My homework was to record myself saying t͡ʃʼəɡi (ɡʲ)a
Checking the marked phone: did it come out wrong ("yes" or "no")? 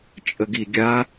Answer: no